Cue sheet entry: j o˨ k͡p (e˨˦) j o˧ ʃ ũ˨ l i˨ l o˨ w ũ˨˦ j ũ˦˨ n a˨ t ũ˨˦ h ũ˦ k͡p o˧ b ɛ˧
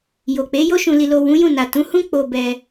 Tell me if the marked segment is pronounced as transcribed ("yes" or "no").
yes